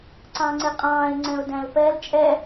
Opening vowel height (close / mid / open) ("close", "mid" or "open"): open